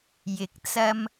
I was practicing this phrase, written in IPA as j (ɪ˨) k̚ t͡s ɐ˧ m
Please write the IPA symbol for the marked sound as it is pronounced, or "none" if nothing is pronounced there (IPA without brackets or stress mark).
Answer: ɪ˨˥